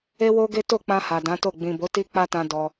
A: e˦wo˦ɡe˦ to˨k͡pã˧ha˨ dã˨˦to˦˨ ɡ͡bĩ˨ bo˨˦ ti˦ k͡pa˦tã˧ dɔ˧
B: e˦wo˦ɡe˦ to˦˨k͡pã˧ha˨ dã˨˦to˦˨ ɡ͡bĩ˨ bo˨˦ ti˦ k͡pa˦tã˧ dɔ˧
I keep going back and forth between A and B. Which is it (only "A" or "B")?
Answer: B